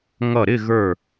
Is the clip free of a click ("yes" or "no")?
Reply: yes